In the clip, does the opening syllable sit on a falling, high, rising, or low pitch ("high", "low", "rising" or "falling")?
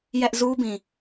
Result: high